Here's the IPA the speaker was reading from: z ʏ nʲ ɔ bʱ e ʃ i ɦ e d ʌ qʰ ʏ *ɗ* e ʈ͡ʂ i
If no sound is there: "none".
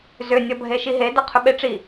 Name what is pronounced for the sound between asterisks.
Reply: ɓ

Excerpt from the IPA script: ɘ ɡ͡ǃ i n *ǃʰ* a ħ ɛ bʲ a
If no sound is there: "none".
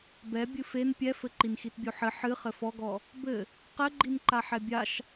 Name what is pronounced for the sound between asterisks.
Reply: ǃ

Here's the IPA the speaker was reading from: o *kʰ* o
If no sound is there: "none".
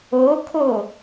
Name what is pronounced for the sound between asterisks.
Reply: kʰ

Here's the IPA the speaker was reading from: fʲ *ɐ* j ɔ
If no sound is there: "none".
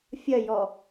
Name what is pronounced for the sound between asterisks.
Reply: ɐ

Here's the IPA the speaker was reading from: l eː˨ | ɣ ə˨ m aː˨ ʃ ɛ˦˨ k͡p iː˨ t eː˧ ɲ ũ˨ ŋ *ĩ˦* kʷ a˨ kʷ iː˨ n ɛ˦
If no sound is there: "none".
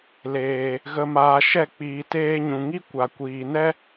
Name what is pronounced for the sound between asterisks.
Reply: i˦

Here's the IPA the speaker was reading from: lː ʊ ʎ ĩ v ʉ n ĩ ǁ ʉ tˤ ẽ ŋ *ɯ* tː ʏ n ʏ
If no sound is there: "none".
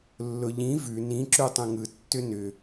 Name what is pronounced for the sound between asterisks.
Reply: ɯ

